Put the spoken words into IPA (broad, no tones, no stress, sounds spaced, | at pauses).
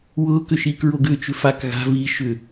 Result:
w ʊː k ʏ ʃ iː k ɹ o ɡ ʏː t͡ʃ ʏ f a k ɣ a̤ v i ʃ ʏ